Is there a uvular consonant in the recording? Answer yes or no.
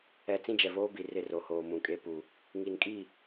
no